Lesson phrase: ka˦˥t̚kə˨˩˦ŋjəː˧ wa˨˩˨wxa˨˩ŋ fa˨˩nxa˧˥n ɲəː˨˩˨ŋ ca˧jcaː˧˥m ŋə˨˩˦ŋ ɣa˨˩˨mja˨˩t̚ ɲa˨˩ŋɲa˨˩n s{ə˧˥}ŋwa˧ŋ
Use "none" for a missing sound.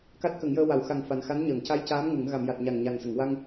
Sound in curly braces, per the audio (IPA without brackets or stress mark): ə˨˩˨